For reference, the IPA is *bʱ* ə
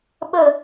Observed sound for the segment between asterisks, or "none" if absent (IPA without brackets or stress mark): ɓ